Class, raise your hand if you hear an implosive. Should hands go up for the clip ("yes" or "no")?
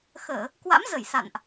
no